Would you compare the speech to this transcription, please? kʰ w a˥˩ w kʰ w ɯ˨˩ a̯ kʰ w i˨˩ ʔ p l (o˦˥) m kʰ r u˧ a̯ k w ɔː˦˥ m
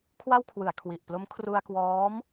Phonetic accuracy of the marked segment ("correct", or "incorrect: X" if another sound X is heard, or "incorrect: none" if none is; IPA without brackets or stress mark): correct